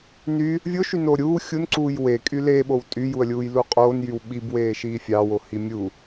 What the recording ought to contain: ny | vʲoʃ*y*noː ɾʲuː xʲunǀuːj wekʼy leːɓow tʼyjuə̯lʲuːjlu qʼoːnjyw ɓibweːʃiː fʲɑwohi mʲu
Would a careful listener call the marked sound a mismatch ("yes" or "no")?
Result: no